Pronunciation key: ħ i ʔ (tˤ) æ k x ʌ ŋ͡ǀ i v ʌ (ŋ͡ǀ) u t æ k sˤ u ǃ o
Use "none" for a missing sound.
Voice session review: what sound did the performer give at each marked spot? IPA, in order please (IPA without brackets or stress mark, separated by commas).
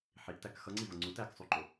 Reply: t, ŋ͡ǀ